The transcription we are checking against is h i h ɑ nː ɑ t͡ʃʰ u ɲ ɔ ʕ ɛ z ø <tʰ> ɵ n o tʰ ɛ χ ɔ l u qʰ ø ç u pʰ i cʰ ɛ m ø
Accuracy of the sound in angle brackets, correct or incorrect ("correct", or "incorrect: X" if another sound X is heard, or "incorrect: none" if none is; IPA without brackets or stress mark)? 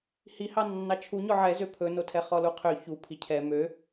incorrect: pʰ